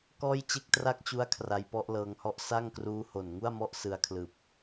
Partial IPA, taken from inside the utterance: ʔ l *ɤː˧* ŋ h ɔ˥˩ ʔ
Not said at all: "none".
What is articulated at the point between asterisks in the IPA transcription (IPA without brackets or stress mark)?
ɤː˧